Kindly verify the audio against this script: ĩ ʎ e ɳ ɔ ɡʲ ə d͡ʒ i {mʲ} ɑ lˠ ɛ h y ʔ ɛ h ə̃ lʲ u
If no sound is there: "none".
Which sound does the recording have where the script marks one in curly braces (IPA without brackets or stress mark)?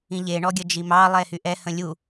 m